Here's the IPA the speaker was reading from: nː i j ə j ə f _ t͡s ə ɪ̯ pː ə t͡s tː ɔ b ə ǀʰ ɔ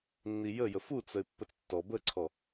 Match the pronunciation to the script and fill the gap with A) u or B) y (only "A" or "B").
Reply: A